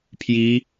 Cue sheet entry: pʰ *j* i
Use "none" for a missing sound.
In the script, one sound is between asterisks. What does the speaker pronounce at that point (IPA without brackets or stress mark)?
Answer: j